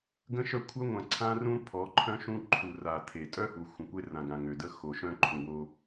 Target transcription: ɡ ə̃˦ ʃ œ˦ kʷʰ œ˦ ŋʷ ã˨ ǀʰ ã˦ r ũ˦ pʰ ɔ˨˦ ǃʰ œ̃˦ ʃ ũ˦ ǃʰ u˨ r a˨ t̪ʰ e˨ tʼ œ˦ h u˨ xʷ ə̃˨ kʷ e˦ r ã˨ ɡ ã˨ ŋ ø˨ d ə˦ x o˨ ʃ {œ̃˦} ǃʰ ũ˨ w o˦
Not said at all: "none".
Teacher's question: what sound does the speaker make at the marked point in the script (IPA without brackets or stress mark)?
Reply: œ̃˦